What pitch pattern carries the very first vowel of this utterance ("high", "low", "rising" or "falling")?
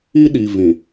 high